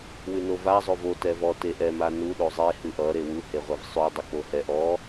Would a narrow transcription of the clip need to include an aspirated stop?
no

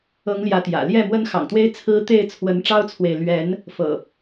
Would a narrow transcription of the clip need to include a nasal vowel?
no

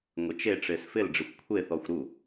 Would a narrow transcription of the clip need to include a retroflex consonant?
yes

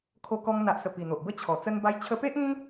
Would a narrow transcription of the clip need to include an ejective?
no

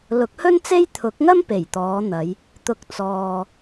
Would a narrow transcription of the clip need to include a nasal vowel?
no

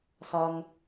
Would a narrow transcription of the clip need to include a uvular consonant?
no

